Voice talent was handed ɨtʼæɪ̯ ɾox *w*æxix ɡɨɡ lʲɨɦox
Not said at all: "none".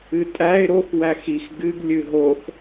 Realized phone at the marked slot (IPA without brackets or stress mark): w